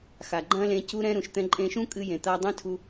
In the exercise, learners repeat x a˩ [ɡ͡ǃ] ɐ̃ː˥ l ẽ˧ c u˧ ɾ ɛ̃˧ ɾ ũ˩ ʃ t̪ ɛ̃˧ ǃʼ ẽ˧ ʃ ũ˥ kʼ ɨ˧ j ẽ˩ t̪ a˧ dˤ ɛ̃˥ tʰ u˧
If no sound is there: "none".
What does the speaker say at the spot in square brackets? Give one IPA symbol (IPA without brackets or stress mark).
ɡ͡ǃ